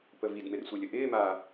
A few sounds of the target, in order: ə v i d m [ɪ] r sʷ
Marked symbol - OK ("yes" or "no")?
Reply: yes